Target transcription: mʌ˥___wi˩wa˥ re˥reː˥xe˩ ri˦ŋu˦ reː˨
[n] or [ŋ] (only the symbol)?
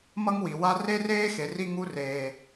ŋ